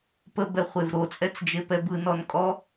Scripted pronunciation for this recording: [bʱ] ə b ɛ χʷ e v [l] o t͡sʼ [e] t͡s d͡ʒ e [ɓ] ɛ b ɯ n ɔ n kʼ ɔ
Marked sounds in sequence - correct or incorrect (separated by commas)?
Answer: incorrect, incorrect, incorrect, incorrect